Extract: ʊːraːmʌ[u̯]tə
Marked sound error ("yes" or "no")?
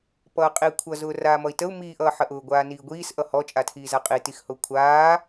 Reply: yes